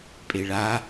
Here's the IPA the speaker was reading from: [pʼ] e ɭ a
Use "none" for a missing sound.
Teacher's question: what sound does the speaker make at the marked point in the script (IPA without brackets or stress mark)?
pʼ